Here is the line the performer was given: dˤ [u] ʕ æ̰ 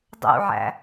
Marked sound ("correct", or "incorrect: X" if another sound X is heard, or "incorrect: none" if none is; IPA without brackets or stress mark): incorrect: ṵ